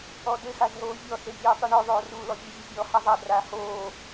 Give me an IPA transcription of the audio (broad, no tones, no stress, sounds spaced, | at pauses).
ɔ d ɘ x a z ɦ oː vʲ ɔ s e zʲ uː tˤ ɯ ɳ o ðˤ oː r uː l ɔ bʲ ɯ zʲ ɘ zʲ ɔ h a zˤ a d r aː h oː